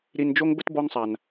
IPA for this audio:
ɾ i˨ n d͡ʒ o˦ ŋ b ə˦ t b ɔ˦ ŋ sˤ a˨ n

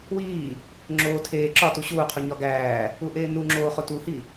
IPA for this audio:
w iː | ŋ͡ǁ oː tʰ eː ǁ ɒ t u ɕ uː qʰ u ɲ ɒ ɡ æː | u ʔ eː n u ŋ͡ǁ oː χ o t u h i

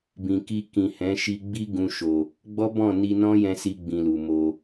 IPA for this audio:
b ĩ˨ k i˧ k ĩ˨ h ɛ̃˨˦ ʃ i˧ ɡ͡b i˦ ɡ ũ˧ ʃ o˨ | ɡ͡b ɔ˦ b ɔ̃˦˨ n i˧ n ɔ̃˦ j ɛ̃˧ s i˧ ɡ͡b ĩ˧ l u˨ m o˧

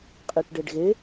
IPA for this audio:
qʼ i ʈ ɖ e ɖ ɣ e

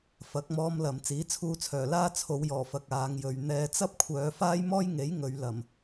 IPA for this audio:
f ɐ˨˥ k̚ m ɔː˥ m l ɐ˨˧ m t͡s iː˨˥ t͡sʰ uː˧ t͡sʰ œː˨˩ l aː˥ t͡sʰ o˨˧ w j ɔː˨˩ f ɐ˧ k̚ aː˨˧ ŋ j ɵ˨ ɥ n̪ ɛː˨˧ t͡s ɐ˥ p̚ kʷʰ œː˨˧ f aː˥ j m ɔː˥ j ŋ e˨˥ j ŋ ɵ˨˧ ɥ l ɐ˨˩ m

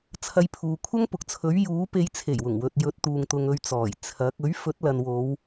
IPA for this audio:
t͡sʰ ɐ˧ j pʰ uː˨ kʷʰ ɐ˥ ŋ p ʊ˨ k̚ t͡sʰ ɵ˨˥ ɥ j uː˨˥ p e˨˧ j t͡sʰ e˨˩ j w ʊ˨˩ ŋ w ɵ˨ t̚ j ɵ˨˥ t̚ t̪ uː˨ ŋ t̪ ʊ˧ ŋ ɵ˧ ɥ t͡s ɔː˨˩ j t͡sʰ ɐ˨˥ k̚ ɵ˨˥ ɥ f ɵ˨˥ t̚ l ɐ˨ n w o˨˧ w

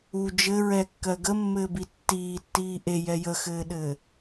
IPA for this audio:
u d͡ʒ ɘ ɹ ɛ kː ɜ ɡ ə mː ɘː b i tː iː tː iː ʔ e j ɛ j ə x ɘː ɗ ɘː

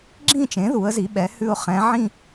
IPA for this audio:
ɡ͡ǁ ĩ˥˧ t͡ʃ ẽ˩˥ ð u˩˥ ə̯ z i˩˥ ɓ ɛ˩˥ h ʉ˥˧ ʊ̯ χ ɛ̃˧˥ ʕ ĩ˥˧

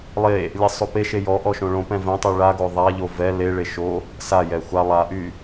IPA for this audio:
lˠ e | lʲ ɛ sˤ o p e ʃ e j ɔ ʔ ɔ ʃ õ ɭ õ p ɛ̃ v ɛ̃ tˤ y ɭ a ɡ o ðˤ a ʎ o v ɛ l e ɭ e ʃ o | s a j ɛ xʷ a lˠ a ʔ y

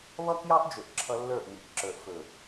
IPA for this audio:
β ʌ˦ k j ɑ˦ ʔ d͡ʒ ɵ˨ ʔ ǁʰ ʌ˦ lː ə˞˦˨ ʔ m i˨ ʔ ǁ ə˞˨ ʔ f ɵ˨

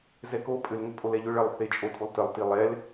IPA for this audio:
z ɛ k o pʼ ʏ l ŋ ʏ pʼ o l ɛ ʎ ʏ ɭ ɐ lˠ θ e t͡ʃʼ o tʼ u lˠ t ə lˠ t i lˠ ɛ l

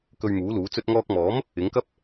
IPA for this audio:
k ɵ˧ ɥ m uː˨˥ l uː˨˥ t͡s ɵ˧ t̚ ŋ ɔː˧ k̚ m ɔː˨˥ m | ɪ˨˥ ŋ k ɐ˥ p̚

